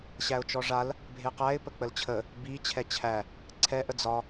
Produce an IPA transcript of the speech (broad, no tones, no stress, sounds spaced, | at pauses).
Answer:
ɕ æ ʊ̯ t͡ʃ ɔ ʐ a l | bʱ e q æ ɪ̯ p ə k͡p ə l t͡ɕʰ ə | b i t͡ɕʰ ɛ t͡ɕʰ æ | ǀʰ ɛ ʔ ə d͡z ɒ